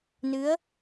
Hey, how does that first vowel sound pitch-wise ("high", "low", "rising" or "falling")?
rising